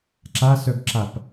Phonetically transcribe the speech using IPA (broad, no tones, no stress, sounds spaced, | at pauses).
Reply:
ǁ a s œ ɡ ǁ a p